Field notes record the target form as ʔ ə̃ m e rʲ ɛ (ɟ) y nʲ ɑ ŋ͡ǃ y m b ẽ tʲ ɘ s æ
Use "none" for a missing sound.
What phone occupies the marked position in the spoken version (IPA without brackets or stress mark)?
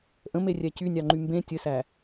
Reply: c